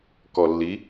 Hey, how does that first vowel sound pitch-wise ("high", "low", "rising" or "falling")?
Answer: low